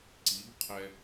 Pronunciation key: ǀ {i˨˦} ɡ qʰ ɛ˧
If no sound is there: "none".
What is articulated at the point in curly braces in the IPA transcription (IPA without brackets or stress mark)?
i˨˦